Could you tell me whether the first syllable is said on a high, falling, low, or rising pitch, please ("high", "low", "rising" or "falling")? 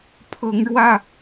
rising